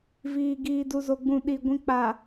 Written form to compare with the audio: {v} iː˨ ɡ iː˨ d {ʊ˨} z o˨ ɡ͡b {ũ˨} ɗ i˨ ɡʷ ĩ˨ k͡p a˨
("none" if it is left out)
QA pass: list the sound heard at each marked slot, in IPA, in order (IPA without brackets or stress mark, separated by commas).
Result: v, u˨, ũ˨